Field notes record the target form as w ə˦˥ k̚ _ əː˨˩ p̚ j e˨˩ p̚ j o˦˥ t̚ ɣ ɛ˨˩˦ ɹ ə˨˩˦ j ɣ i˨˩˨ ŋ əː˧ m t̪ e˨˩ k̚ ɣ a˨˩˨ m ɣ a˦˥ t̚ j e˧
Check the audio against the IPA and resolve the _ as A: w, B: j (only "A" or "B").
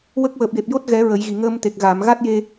A